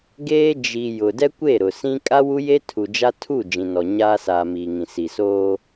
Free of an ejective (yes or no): no